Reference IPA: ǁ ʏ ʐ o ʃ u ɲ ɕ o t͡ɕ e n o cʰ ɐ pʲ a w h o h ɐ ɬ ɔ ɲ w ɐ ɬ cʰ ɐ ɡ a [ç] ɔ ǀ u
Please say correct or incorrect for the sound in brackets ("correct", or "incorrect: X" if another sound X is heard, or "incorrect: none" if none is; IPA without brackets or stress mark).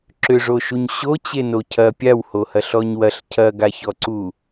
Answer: correct